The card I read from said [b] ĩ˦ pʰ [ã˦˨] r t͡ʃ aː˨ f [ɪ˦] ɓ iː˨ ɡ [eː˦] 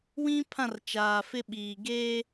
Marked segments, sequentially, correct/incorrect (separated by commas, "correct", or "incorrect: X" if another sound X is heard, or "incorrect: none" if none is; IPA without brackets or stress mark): incorrect: w, correct, correct, correct